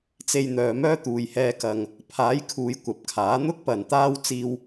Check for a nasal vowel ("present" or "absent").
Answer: absent